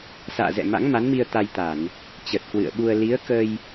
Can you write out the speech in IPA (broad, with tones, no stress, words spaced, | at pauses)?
sa̰ː˧˨zɛ̰˧˨ ma̰˧˥ŋ ma˨˦nmi˧ə̯ t̪a˧jt̪a˧˩˨n | t͡ɕə˨˩t̚kwɨ̰˧˨ə̯ɓu˧ə̯ li˨˦ə̯kə˧j